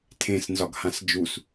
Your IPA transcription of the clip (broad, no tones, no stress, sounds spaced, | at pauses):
tʰ ẽ s n z ɒ ɡ h ã s d͡ʒ u s